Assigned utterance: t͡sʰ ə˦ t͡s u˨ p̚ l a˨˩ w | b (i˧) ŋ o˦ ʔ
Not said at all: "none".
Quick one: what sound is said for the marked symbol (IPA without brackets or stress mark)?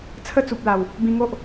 ĩ˧